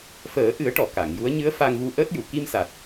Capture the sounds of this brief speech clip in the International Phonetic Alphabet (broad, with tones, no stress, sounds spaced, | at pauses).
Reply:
f əː˨˩˦ ʔ ɨ˨˩˦ ə̯ ʈ ɔ˨˩˨ k a˨˩˨ ŋ j u˧˥ ə̯ ɲ ɨ˧˥ ə̯ f a˧ ŋ v u˧ ʔ əː˦˥ t̚ j u˨˩˨ k i˧ m s a˨˩ t̚